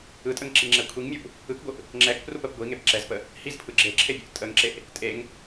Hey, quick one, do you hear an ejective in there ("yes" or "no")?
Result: yes